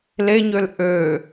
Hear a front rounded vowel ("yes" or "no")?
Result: yes